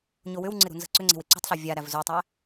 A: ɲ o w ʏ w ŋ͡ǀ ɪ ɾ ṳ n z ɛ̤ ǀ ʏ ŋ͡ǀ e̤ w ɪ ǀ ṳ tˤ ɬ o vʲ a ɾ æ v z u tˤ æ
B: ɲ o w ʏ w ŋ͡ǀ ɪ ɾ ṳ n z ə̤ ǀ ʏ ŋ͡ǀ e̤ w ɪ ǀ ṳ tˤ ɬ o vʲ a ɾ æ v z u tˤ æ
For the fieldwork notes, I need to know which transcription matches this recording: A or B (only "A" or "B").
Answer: B